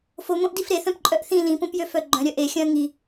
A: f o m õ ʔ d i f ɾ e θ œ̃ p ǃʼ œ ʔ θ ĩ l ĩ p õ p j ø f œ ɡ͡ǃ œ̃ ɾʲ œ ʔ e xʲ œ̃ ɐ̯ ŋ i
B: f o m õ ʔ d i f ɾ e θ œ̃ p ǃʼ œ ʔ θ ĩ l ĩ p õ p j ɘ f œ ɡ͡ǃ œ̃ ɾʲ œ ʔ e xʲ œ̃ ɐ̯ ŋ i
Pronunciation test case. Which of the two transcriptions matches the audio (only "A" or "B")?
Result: A